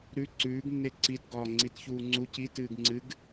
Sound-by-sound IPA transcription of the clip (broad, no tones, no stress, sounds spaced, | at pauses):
ɾ ʉ ǀ ʉː ɡ nː e ǀ i t ɡ ɒː ŋ͡ǀ i t ç uː ŋ͡ǀ u c i t ɨː ɡ ŋ͡ǀ ɨ ɡ